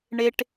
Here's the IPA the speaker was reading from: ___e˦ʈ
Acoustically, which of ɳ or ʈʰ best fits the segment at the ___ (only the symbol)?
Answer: ɳ